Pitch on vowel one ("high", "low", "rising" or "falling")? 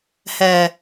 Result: low